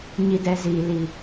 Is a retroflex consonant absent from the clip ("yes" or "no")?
yes